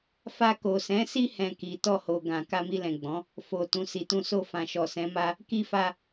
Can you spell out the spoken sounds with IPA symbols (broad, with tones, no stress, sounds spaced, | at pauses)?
f a˧ k o˨ s ɛ̃˨˦ s i˦ h ɛ̃˧ k i˨ t ɔ˧ h o˨ ɡ ã˨ k a˧ m i˧ l ɛ̃˨ ɡ͡b ɔ̃˨˦ | f o˨ t ũ˨ s i˨ t ũ˧ s o˧ f ã˨ ʃ ɔ˨ s ɛ̃˨˦ m a˦ | k i˧ f a˧